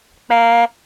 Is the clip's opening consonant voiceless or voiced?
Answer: voiceless